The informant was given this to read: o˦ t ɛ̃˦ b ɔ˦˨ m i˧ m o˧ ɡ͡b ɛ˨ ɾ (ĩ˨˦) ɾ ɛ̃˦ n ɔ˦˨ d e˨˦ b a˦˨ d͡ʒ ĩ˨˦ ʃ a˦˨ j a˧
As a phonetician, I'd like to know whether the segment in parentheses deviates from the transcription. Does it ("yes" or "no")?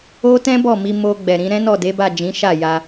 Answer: yes